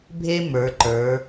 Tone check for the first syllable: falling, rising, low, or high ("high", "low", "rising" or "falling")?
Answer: high